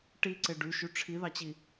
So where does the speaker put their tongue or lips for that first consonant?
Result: retroflex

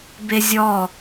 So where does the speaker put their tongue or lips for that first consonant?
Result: lips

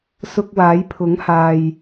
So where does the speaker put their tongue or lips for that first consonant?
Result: tongue tip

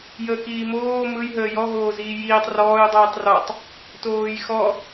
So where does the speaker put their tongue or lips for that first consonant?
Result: palate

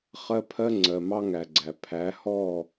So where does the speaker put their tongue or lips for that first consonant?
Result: uvula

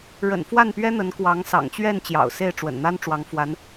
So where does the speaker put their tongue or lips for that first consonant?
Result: retroflex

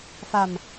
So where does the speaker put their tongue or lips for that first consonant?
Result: lips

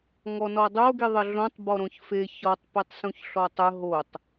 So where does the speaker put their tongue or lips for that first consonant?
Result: velum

